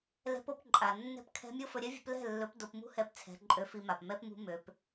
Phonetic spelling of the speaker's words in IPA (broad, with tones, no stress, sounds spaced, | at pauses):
l ɛ̤˦ p o˦ p ǃʼ a˨ nː ɛ̤˦ p kʰ ɛ̤˦ mʲ o˦ f ɵ˧ ɾʲ ɛ˦ vʲ ṳ˧ p l ɛ̤˦˨ lː ɵ˨˦ p d o˧ p m ṳ˦ h ɛ˧ p t͡sʰ ɛ̤˨˦ ǃʼ ø˧ f i˧ m a˨ p m ɛ˦ p m ṳ˦ m ø˦ p